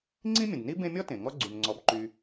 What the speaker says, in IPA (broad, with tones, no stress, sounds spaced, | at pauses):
ŋ͡ǀ ĩ˦ mʲ ə̃˩ d n i˦ b ẽ˦ mʲ ɔ˥ t ẽ˩ ŋ ɔ˦ ɡ͡ǀ y˩ n ŋ͡ǀ ɔ˨ b ǃ y˨